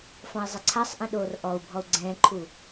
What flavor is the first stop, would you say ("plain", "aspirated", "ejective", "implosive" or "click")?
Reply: click